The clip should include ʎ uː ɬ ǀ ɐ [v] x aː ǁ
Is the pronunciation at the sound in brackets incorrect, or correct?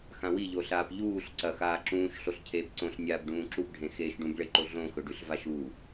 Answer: incorrect